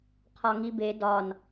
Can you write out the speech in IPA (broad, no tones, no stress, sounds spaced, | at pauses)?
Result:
qʰ ɒ ŋ i b e d ɒ n